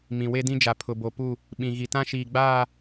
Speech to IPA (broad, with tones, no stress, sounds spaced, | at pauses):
m ĩ˨ w e˦ d ĩ˦ d͡ʒ a˨ pʰ ʊ˨ b o˨ p u˦˨ | ɓ ĩ˨ ɣ i˨ t ã˦ ʃ iː˨ ɡ͡b aː˦˨